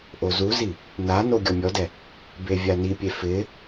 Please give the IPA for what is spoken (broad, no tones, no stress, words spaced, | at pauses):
ʔozuzi | na noɡʲɔmʲɔdɛ | bevʲanipʲe fɪ